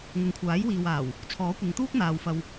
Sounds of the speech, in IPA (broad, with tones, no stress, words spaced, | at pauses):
ŋʊ˨ŋkʷʰaː˨˥jwiː˨waː˨˩w | t͡sʰɔː˨˥kʷɐ˨˧ŋt̪uː˥k̚n̪aː˨w fɐ˧w